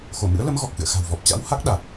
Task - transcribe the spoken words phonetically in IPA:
x o˧˩ m ɨ̰˧˥ ə̯ l ə˨˦ m ɣ ɔ˨˩ k̚ x ɨ̰˧˨ ə̯ x a̤˨˩ w v ɔ˨˩ p̚ t͡ɕ a̰˧˥ w h a˦˥ k̚ ɗ a˨˩ t̚

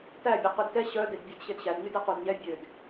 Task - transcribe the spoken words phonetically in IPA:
t æ bʲ ɛ q ʉ d t ɛ ɕ œ d e d bʲ ø d ɕ e d ɕ æ d ɲ y d ɛ q u d ɲ ɛ bʲ ø d

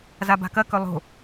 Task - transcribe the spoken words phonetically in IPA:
z a b a̤ k ɐ k ɵ lˠ o̤

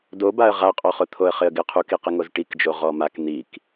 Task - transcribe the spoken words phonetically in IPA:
d o b a ə̯ ʁ a qʼ ɔ χ ʊ t̪ʰ o ə̯ χ ɪ ə̯ ɡ ɪ qʰ u k i q ɪ ŋ o z ʈ i k d͡ʒ o ʁ ɔ m a k n̪ i k

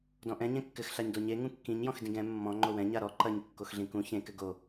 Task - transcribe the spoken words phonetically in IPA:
d ɔ̃ ʔ ɛ̃ ɲ ɛ̃ kː ɘ x ɬ a ɲ d o ɲ e ŋ ũ kː ĩ ɲ j ɔ̃ x d ĩ ɡ ɛ̃ mː ɔ̃ ŋ͡ǃ o w ɛ̃ ɲ a ɾ ɔ ǃ ɐ ɲ kː o x ɮ ĩ k ũ ç ẽ k ɘ ɡ o

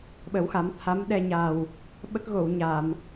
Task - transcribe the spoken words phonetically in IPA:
ɓ ə˨˩˦ w x a˨˩˦ m t̪ʰ a˧˥ m ɗ ɛ˧ ɲ a˨˩ w | ɓ ə˦˥ k̚ ɣ o˨˩˨ w ɲ a˨˩˨ m

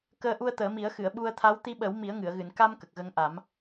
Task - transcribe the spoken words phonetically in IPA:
k əː˧ ʔ u˧ ə̯ t̪ əː˨˩˦ m i˨˩˦ ə̯ x ɨ˨˩˨ ə̯ ɓ u˧ ə̯ t̪ʰ a˧˥ w t̪ i˧ ɓ ə˨˩˦ w m i˨˩˦ ə̯ ŋ ɨ˨˩˨ ə̯ ɣ ɨ˨˩˨ n k a˧ m k ə˨˩ k̚ ɣ ə˧ ŋ ʔ a˨˩˦ m

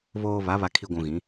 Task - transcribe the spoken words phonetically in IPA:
β oː˨ β a˨˦ β a˨ kʰ i˨ ɡʷ ũ˨ ɣ ĩ˨˦

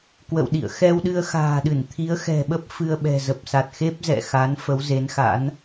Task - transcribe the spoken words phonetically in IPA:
k w ə̰˧˨ w ɗ ḭ˧˨ ə̯ x ɛ˧ w ɗ ɨ˧ ə̯ x a̤ː˨˩ ɗ ɨ˧˩ n t̪ʰ i˨˦ ə̯ x ɛ̤˨˩ ɓ ə˦˥ p̚ f ɨ˧ ə̯ ɓ ɛ̤˨˩ z ə˨˩ p̚ s a˨˩ t̚ x e˦˥ p̚ z ɛ̰˧˨ x a˨˦ n f ə˨˦ w z e˨˦ n x a̰˧˥ n

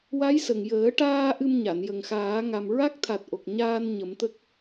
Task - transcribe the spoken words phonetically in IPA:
w a˧˥ j s ə˨˩ ŋ j əː˨˩˦ ʈ aː˧ ʔ ɨ˧ m ɲ a˨˩˨ n j ə˨˩ ŋ x aː˨˩˦ ŋ a˨˩ m ɹ a˦˥ k̚ t̪ʰ a˨˩ t̚ ʔ o˨˩ k̚ ɲ aː˧ n ɲ ə˨˩˦ m t̪ ə˦˥ k̚

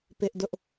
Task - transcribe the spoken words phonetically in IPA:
p ɪ˦ ʔ d ʊ˦ ʔ

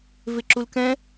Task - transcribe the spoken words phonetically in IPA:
v ɪ ǁ u l k ɛ̃

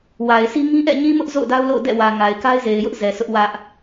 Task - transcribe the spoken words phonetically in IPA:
w a˨ ɪ̯ sʰ i˦ ŋ ĩ˦ ʔ ɛ̰˦˨ ɲ ĩ˦ m ʊ˦ ʔ z o̰˦˨ ʊ̯ d a˦ ʊ̯ l o̰˦˨ ʊ̯ d ɛ̰˦˨ w ä˨ ŋ a˨ ɪ̯ k a˦ ɪ̯ z e˨ ɪ̯ j ʊ˦ ʔ z ɛ˨ sʰ ʊ˦ ʔ w ä˦ ʔ

